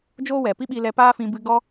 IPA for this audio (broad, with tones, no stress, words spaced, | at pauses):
d͡ʒoː˦wɛ˨ pi˦ɓi˧lɛ˧ paː˦fĩ˧ bɨ˧ɡɔ˦